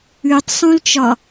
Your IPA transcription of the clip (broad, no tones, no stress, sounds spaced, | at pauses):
ʉ tˤ sˤ ũ l t͡ʃ ɒ